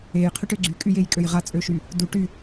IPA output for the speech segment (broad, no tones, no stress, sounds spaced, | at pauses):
e j qʰ y ʈ ø ɡ͡ǀ y kʼ y j e j kʼ ø j ʁ a t͡sʼ ø ʃ y | d u ʈ y